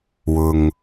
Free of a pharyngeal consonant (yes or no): yes